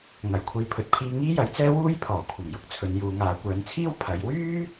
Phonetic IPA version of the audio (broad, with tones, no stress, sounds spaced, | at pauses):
ŋ ɐ˨˩ j kʷʰ iː˨ pʰ ɵ˨ t̚ pʰ iː˧ ŋ iː˥ j ɐ˨˧ j t͡s ɛː˥ w uː˥ j pʰ ɔː˨˩ kʷʰ ɐ˨˩ m j ʊ˨ k̚ t͡sʰ ɵ˨˧ n j uː˨˧ ŋ aː˨˧ kʷ œː˨˧ n t͡sʰ iː˥ w pʰ ɐ˨˧ j w yː˥